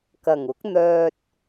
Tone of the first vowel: low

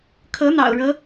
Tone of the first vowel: rising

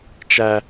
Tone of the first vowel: low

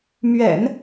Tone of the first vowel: low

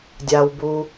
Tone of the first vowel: low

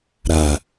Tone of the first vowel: low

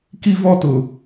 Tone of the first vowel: high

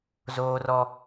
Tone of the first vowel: high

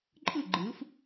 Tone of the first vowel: falling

